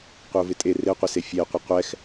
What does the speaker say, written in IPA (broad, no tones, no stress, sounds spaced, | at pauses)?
qʷ ɪ ʊ̯ v ɪ tʼ e r e qʷ ɪ s e fʲ e qʷ ə qʷ ɛ x